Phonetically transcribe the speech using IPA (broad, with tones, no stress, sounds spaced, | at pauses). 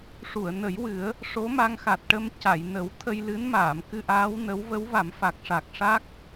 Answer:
ʂ u˨˩˨ ə̯ n ə˨˩˦ j w ɨ˨˩˦ ə̯ | ʂ o˧˥ m a˧ ŋ x a˨˩ t̚ ʈ ə˧ m c a˨˩˨ j n ə˨˩˦ w t̪ʰ ə˧ j l ɨ˧˥ n m aː˨˩˨ m k ɨ˧ ʔ aː˧˥ w n ə˧˥ w v ə˧˥ w v a˨˩˦ m f a˨˩ k̚ ʂ a˨˩ k̚ ʂ a˦˥ k̚